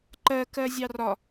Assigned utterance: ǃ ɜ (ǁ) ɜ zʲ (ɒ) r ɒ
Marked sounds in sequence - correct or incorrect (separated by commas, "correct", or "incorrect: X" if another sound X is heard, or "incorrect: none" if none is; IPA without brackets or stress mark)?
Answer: incorrect: k, incorrect: ɑ